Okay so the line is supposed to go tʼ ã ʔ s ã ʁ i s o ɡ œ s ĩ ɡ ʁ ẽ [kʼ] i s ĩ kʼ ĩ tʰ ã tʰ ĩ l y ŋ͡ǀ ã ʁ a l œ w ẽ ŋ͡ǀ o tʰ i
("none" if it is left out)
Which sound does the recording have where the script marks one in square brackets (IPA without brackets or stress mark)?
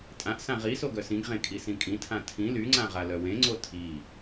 kʼ